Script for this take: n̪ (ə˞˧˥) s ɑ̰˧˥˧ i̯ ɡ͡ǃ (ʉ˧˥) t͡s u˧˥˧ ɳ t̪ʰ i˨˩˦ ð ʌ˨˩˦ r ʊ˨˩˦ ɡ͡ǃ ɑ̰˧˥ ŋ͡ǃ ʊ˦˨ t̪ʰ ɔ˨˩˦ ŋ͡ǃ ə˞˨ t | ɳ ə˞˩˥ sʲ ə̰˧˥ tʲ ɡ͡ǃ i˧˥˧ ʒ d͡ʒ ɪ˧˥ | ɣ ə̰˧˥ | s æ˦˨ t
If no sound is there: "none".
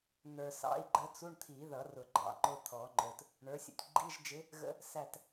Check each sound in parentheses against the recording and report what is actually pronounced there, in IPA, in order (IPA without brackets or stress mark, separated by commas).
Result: ə˞˨, ə˧˥